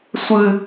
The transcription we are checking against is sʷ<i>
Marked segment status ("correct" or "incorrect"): incorrect